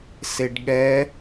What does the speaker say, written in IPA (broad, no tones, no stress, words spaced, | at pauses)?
seɖɠɛ